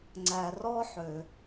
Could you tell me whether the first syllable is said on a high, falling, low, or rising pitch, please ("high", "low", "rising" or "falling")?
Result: low